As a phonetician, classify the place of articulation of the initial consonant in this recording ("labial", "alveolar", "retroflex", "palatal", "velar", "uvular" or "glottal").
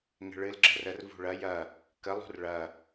velar